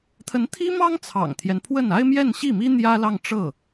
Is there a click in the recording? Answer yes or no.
no